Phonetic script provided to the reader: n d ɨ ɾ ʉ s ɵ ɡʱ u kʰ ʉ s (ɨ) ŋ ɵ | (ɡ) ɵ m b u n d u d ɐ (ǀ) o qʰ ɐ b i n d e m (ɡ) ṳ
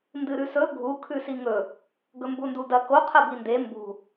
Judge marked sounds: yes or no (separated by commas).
no, yes, no, no